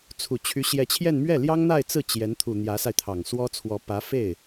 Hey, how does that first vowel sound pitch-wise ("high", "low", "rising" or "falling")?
low